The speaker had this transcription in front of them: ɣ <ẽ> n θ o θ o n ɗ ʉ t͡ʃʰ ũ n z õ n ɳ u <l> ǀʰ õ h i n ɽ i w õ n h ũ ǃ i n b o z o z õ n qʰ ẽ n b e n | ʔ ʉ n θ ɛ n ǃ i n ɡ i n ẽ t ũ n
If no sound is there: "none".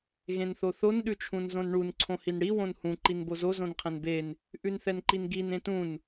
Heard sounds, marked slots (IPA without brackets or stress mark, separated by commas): ẽ, n